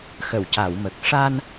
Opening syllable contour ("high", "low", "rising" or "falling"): low